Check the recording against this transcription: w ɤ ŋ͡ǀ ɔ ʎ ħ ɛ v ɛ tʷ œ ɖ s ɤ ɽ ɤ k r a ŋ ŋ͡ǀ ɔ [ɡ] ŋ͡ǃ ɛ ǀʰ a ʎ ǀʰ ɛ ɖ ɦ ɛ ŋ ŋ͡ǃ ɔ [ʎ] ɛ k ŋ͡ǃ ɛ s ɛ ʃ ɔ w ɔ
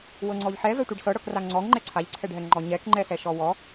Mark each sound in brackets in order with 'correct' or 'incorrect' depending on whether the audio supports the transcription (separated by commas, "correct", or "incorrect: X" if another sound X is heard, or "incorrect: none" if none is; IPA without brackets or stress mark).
incorrect: ŋ, incorrect: ɲ